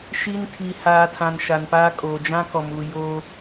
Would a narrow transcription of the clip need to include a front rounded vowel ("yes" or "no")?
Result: no